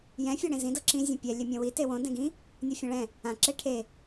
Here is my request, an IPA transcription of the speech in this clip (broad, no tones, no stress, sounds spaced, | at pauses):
j ɛ̃ fʲ ɔ ɽ ẽ z ĩ d ɤ ǁ ĩ zʲ õ pʲ ɛ lʲ ɛ mʲ ɔ̃ w i t e w õ d ɛ̃ ɡ ĩ | nʲ ɔ fʲ ɔ̃ ɭ ɛ̃ | ã ǁ e ʈʰ e